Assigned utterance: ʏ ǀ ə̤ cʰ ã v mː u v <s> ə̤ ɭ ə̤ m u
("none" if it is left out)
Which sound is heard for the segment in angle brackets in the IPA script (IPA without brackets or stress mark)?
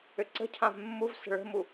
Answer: s